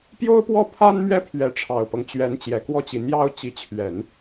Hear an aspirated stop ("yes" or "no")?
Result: yes